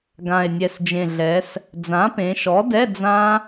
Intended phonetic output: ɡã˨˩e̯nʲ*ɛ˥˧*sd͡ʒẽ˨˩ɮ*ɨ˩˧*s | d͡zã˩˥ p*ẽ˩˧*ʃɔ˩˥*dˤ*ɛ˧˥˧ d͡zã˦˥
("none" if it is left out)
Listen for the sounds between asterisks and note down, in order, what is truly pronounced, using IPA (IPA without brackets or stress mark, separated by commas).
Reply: ɛ˨˩, ɛ˩˧, ẽ˩˧, d